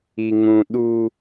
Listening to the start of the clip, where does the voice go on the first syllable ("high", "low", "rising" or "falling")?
high